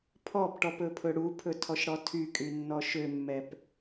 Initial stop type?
aspirated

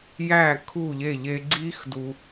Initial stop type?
aspirated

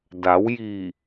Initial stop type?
plain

